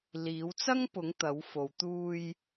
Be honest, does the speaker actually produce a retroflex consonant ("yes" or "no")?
no